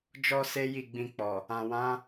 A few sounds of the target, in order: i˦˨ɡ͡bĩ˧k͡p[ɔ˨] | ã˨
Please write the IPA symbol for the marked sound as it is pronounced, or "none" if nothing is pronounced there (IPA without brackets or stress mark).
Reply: ɔ˨